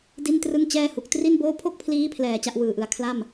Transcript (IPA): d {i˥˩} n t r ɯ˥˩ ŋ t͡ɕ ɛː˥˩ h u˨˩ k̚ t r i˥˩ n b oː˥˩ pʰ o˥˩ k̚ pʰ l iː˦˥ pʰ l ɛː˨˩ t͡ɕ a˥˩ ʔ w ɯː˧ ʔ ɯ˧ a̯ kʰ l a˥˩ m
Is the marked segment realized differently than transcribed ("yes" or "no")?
no